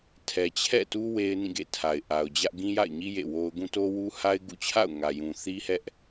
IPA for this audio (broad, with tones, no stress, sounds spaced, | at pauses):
tʰ ɛ˨ t͡ɕʰ ɛ̰˦˨ t u˦ w e˦ ɪ̯ n ĩ˦˨ ɡ ḛ˦˨ tʰ a˨ ɪ̯ ʔ a˨ ʊ̯ d͡ʑ ä˦ ʔ ɡ ĩ˦ j a̰˦˨ ɪ̯ ɲ i˦ j ḛ˦˨ w o˦ ʊ̯ ɡ ũ˦ t o˦ w u˦ h a˦ ɪ̯ ɡ ṵ˦˨ t͡ɕʰ a̰˦˨ ʊ̯ ŋ ä˨ j ũ˨ θ i˦ h ɛ˦ ʔ